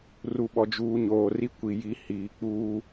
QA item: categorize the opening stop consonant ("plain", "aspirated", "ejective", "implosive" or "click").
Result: implosive